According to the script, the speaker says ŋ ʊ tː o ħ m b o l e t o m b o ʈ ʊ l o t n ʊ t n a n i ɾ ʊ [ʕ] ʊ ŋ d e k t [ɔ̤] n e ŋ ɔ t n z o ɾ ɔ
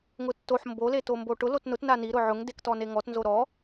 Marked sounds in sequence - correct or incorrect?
correct, incorrect: ɔ

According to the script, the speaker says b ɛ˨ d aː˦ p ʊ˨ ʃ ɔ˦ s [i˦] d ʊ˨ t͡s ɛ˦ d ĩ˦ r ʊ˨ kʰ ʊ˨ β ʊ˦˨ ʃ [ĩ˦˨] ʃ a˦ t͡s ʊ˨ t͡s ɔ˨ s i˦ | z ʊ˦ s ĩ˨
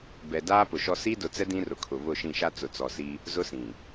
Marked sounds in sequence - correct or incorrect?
correct, correct

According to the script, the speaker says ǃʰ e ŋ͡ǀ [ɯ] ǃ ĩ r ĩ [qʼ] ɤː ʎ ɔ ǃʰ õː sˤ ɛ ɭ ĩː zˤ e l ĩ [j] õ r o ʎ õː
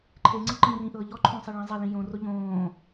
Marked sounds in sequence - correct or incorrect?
correct, incorrect: ʔ, correct

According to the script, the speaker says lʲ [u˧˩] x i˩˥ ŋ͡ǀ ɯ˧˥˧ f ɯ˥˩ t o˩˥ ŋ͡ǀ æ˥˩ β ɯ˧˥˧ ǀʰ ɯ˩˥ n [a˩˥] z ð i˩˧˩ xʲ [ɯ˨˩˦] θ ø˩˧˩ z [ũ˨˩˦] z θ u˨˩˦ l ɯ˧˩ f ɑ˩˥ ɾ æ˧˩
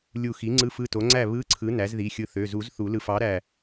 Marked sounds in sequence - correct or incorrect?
correct, incorrect: æ˩˥, incorrect: ɯ˧˩, incorrect: u˨˩˦

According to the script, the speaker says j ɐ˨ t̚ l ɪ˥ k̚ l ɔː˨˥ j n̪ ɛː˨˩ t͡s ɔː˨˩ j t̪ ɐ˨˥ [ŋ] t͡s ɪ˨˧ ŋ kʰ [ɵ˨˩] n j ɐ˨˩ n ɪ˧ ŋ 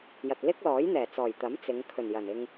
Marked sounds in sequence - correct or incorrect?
incorrect: m, correct

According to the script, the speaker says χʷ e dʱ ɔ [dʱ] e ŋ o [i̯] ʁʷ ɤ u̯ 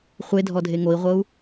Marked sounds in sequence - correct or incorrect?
correct, correct

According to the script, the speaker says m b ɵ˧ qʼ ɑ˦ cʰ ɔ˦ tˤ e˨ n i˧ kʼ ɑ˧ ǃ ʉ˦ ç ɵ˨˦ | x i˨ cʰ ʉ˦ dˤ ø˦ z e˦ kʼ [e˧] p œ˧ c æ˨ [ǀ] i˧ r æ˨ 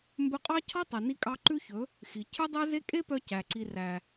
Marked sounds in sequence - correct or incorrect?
incorrect: e˦, correct

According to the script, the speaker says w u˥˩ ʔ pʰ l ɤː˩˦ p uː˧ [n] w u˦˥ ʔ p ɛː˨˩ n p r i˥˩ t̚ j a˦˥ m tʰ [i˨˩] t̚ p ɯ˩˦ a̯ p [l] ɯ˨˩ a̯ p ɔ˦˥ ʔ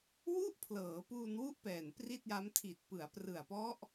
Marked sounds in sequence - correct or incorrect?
correct, correct, incorrect: r

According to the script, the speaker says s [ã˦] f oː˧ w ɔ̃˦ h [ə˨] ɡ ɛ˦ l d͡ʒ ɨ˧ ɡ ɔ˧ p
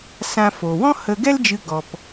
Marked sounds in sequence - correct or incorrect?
correct, incorrect: ə˧

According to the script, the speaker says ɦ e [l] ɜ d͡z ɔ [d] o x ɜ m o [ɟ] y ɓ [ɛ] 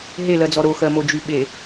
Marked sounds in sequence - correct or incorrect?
correct, incorrect: ɾ, incorrect: d͡ʒ, incorrect: e

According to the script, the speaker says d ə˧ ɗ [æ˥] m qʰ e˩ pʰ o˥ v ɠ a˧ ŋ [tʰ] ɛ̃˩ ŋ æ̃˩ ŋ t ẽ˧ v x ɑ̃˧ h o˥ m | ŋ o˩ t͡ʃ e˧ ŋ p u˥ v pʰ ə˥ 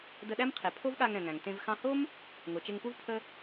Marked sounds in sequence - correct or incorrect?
correct, incorrect: ɾ

